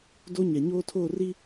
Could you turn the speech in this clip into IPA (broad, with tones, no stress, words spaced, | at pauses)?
do˦ɲɛ˨ ɲoː˦tʰoː˦˨ri˦